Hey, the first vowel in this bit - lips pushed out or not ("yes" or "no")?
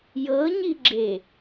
no